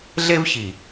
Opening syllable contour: high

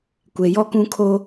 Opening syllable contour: low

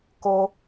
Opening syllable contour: high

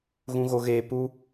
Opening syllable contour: high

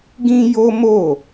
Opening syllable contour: high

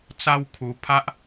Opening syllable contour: high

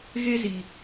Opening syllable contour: high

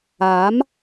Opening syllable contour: rising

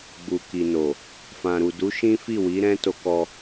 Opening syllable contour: low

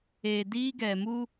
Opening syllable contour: low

